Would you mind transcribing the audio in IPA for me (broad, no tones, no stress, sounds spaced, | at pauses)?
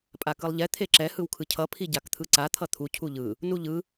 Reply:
pʼ a k ɯ lˠ ʎ ɛ t̪ʰ e ǁ ɛ h ɯ w kʰ ɯ cʰ ʌ pʰ i ɟ a k t̪ʰ ɯ ǀ a t̪ʰ ʌ t̪ʰ u cʰ u ʎ ɯ | n u ʎ ɯ